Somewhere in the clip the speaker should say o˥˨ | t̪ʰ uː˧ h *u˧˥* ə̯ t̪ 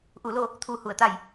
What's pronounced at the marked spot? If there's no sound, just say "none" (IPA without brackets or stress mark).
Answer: u˧˩